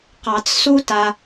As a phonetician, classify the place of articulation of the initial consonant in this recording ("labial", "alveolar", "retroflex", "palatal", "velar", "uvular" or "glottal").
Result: uvular